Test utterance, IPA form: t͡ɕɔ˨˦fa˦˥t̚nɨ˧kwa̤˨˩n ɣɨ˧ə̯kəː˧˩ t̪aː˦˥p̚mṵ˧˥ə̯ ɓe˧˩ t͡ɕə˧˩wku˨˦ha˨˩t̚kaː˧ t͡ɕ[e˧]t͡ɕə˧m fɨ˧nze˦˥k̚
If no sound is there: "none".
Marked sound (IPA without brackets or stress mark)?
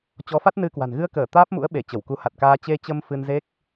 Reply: e˧